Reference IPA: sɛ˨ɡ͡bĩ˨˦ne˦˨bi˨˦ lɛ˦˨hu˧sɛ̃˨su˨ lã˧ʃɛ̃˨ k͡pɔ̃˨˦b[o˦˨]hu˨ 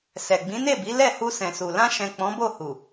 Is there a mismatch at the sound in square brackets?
no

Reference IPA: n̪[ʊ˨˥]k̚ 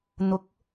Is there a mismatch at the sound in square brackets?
no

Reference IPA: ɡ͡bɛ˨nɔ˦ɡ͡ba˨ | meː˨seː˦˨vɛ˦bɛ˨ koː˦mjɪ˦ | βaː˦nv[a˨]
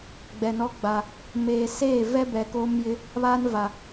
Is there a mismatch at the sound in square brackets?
no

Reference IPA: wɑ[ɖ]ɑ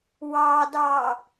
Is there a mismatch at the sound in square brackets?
yes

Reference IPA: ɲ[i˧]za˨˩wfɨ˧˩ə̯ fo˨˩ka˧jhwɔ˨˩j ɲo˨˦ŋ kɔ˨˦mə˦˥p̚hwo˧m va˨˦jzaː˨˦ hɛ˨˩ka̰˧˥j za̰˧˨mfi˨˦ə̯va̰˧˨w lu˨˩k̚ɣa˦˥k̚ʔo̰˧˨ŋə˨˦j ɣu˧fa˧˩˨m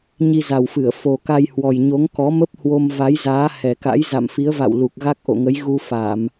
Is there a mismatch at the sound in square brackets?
no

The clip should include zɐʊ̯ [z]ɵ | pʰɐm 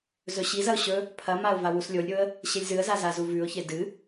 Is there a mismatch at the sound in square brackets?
yes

